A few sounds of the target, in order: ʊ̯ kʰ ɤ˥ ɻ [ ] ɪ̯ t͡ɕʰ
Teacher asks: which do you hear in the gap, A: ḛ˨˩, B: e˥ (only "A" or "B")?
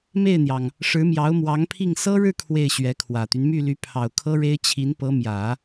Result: B